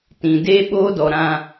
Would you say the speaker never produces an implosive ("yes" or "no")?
no